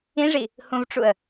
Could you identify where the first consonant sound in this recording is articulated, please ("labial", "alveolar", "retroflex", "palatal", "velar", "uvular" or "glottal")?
retroflex